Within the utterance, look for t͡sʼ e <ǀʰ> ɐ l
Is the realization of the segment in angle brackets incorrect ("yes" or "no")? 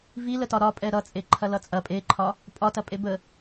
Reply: yes